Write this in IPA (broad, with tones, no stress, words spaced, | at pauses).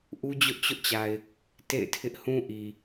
ʔu˦d͡ʑʊ˦ʔt͡ɕʊ˦ʔt͡ɕa˨ɪ̯ | tḛ˦˨ɪ̯tʰɪ˦ʔhũ˦ʔi˨